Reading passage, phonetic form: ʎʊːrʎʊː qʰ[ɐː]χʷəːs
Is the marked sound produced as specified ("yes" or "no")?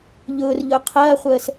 yes